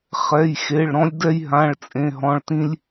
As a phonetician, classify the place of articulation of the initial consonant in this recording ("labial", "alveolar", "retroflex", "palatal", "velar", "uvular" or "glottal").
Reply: uvular